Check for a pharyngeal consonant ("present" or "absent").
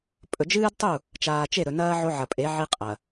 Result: present